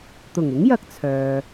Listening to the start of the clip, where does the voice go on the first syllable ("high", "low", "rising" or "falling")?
low